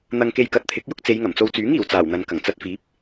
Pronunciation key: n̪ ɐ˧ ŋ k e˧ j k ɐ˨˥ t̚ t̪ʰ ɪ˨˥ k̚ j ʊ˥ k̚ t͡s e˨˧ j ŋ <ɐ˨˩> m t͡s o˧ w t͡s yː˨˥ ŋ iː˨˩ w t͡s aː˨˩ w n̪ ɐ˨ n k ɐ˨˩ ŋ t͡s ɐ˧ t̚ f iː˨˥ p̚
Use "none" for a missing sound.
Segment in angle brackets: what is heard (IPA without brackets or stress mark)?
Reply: ɐ˨˩